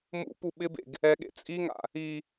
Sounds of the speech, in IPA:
m ṵ p u ɓ ɪ b ḛ ɡ | ɛ ɠ ḛ t͡sʼ i ŋ a̰ | i

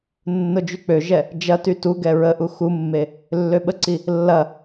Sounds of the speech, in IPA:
nː ʊ d͡ʒ y k͡p ø ʒ ɛ | d͡ʒ ɐ t y t u ɡ ɛ ɹ ə ʔ u x u mː e | lː ø ɓ ə ǀ i | lː ɐ

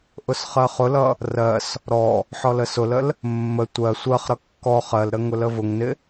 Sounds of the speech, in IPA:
ʔ ʊ s χ ɜ χ ʊ l ʌ | r ɜ s | ɾ ɔ | ħ ɔ l ə s ʊ l ə l | mː ə tʷ ɜ sʷ ɜ χ ɾ ʌ kː ɔ χ ɜ l ɾ ə ŋ ʊ l ə v ʊ ŋ n ɪ

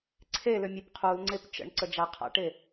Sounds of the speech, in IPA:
ǀʰ e l ʏ mʲ e p qʰ u l ŋ͡ǀ e p t͡ʃ ə̰ ɳ ǀ ə d͡ʒ a qʰ a̰ ʈ e

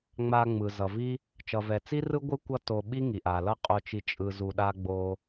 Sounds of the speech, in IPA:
ŋ͡m a˧ ŋ͡m ɯ˩ z ʌ˩ v i˥ | t͡ʃ ʌ˩ v ɛ˩ t͡s i˥ r ɯ˥ ɡʷ ɯ˥ kʷ ʌ˥ t o˧ ɓ i˥ ŋ i˩ ʔ a˩ l ʌ˥ qʼ o˧ t͡ʃ i˧ t͡ʃʼ ɯ˧ z u˧ ɗ a˥ ɡ͡b o˥

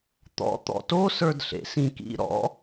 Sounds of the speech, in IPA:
t̪ ɔ̰ t̪ ɔ̰ t o s ə˞ d ɬ ḛ s ĩ k ḭ ɾ ɔ̰

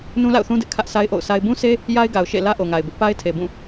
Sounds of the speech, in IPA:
n ũ˦ l a̰˦˨ ʊ̯ θ ũ˦ d ɪ˦ ʔ kʰ ä˦ ʔ s a˦ ɪ̯ ʔ o̰˦˨ ʊ̯ sʰ a˦ ɪ̯ b ũ˦ sʰ e˦ | j a˦ ɪ̯ ɡ a˨ ʊ̯ ʃ ḛ˦˨ l ä˦ ʔ o˨ ŋ a˨ ɪ̯ b ɪ˦ ʔ p a˦ ɪ̯ tʰ e˨ b ũ˦˨

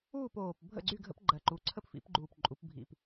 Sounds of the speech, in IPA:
uː˥˨ p oː˨˩ p bʱ ə̰˥˨ ɡ͡ǀ y˥˨ ɡʱ ə̰˦ p ɡ͡ǃ ɜ˨˩ ǃ u˩˥ ǀʰ ə˥˨ p f ḭ˩˥ p ɡ͡ǃ uː˨˩ p ǃʼ u˩˧ p bʱ ḭ˨˩ p

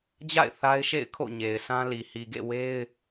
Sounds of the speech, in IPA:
d͡ʑ a̰˦˨ ɪ̯ θ a˦ ɪ̯ ʃ ḛ˦˨ ɪ̯ kʰ o̰˦˨ ɲ e˨ ɪ̯ sʰ ã˦ l i˨ h i˨ ɡ ḛ˦˨ w e˦ ɪ̯

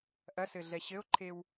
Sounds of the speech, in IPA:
ʔ ɐ s ɘ ɮ ɛ ɕ ɘ o̯ ǃʰ e w

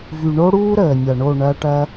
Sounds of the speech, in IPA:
v y˨ ɳ o˦ ɽ uː˦ ɾ əː˨ nʲ ɐ˨ ɳ o˦˨ ɳ ɐ˧ ʈ ɐ˧

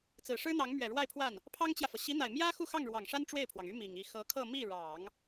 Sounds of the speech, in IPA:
t͡s ɹ̩˨˩ ʂ ɻ̩˥ n̪ ɑ˧˥ ŋ m ɥ ɛ˨˩ ɻ w a˥˧ ɪ̯ pʰ w a˥˩ n | pʰ ɑ˥ ŋ t͡ɕ j ä˨ f ɤ˩ ɕ i˧˥ n̪ a˨˩ ɪ̯ m j ä˥ x u˥˧ x ɑ˥˩ ŋ ɻ w ɑ˨˩ ŋ ʂ a˥ n ʈ͡ʂ w e˥˩ ɪ̯ pʰ w ɑ˩ ŋ y˥ m i˨˩ ŋ i˥˩ x ɤ˧˥ kʰ ɤ˥˧ m i˥˩ ɻ ɑ˨˩˦ ŋ

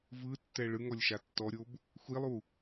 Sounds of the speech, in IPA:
v ɯ tː ɛ ɭ ɯ ŋ ɔ lʲ ʃ a tː ɔ ɾʲ o b | xʷ i lˠ u

